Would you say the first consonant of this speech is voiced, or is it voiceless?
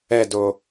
voiced